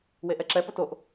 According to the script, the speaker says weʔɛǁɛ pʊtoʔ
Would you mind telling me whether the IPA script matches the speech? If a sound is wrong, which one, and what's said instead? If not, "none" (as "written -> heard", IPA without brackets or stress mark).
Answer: none